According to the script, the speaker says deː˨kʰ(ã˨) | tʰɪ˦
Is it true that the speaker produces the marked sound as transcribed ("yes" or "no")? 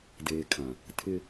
yes